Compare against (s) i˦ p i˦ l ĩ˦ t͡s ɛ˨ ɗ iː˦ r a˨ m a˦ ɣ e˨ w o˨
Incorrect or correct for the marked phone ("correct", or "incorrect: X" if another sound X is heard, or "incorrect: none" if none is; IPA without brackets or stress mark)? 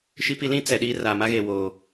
incorrect: ʃ